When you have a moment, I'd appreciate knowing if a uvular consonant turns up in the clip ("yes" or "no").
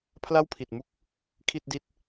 no